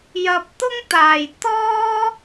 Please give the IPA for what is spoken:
j ɐ˨ p̚ t̪ ʊ˥ ŋ t̪ aː˨˩ j t̪ ɔː˥

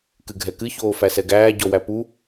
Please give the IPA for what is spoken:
k ɨ ɡʱ ɛ k ɨ ç oː f æ s ɛ ɡ æː ɟ ɔ w æ p u

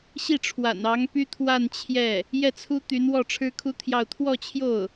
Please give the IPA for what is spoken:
ɕ i˥˩ ʈ͡ʂʰ w a̰˨˩ n ɑ˧˥ ŋ p y˥ t̪ʰ w a˥˧ n t͡ɕʰ j ɛ˥˩ | j ɛ˥˩ t͡sʰ u˥ t̪ y˧˥ n w ɔ˥˩ ʈ͡ʂʰ ɻ̩˥ kʰ u˥ t̪ʰ j ɑ˥˧ ʊ̯ t̪ʰ w ɔ˥˧ t͡ɕʰ j o˥˩ ʊ̯

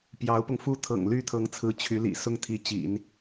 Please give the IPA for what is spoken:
p j ɑ˧˥ ʊ̯ p ʊ˧ ŋ f u˥ t̪ʰ ɤ̰˨˩ ŋ l y˥˩ t̪ʰ ɤ˧˥ ŋ t͡sʰ ɹ̩˧˥ t͡ɕʰ y˧˥ l ḭ˨˩ s ʊ˥˩ ŋ t̪ʰ i˧˥ t͡ɕ ḭ˨˩˦ n

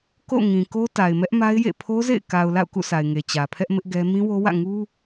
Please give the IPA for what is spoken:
k o̰˦˨ ŋ ĩ˨ k o˦ t a˨ ɪ̯ m ɛ˦ ʔ m a˦ ɪ̯ j ḛ˦˨ pʰ o˦ z ḛ˦˨ ɪ̯ k a˨ ʊ̯ l a̰˦˨ ʊ̯ k ṵ˦˨ s a˨ ɪ̯ ŋ e˨ t͡ɕ ä˨ pʰ ɛ˦ ʔ m ɪ˦ ʔ ɡ ɛ˦ m ĩ˦ w o˦ w ä̰˦˨ ŋ u˦

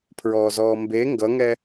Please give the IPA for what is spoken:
pʰ ɹ ɔː z ɔː m b e ŋ ɡ ʌ ŋ ɛ

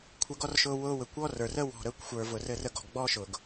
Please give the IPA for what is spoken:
kʷʰ ə˧ ɡ ɔ˦ r ʃ ʊː˧ w ʊː˧ w ɘ˨ kʷ ɔ˦ r ə˞˨ r ə˦ w ɔ̤˨ ɾ əː˧ kʷ xʷ ə˞˨ v ʊ˨ r ɘ˧ r ə˦˨ ɡ ɔ̤˨ ɡ ɡ͡b ɔː˦ ʃ ʊ˨ ɡ

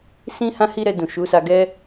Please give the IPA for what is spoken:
s ĩ˦ h ã˦ h i˦ ɾ ɛ˧ d ũ˨ ʃ u˨˦ s a˧ ɡ ɛ˦

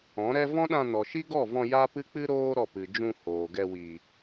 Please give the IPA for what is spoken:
ɔ̃˨˦ ɾ ɛ˦ v ɔ̃˦ ɗ ã˧ n ɔ˨ ʃ i˦ ɡ ɔ˦˨ v ɔ̃˧ j a˦ p ɨ˦ k͡p ɨ˦ ɾ oː˦ ɾ ɔ˦˨ p ɨ˨ d͡ʒ ũ˧ h oː˨ ɡ ɛ˧ w iː˨

